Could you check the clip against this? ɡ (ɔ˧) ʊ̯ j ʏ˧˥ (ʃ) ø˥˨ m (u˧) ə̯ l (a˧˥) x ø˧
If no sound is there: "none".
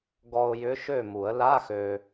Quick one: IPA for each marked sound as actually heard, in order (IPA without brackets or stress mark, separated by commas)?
ɔ˧, ʃ, u˨˩˦, a˧˥˧